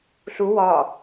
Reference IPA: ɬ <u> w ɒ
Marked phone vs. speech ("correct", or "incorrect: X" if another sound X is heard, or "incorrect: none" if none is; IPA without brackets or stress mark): correct